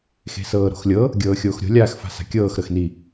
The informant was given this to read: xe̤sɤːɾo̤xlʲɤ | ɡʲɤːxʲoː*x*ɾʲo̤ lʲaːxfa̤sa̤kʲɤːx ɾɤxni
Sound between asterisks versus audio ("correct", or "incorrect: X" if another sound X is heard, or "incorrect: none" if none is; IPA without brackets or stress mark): correct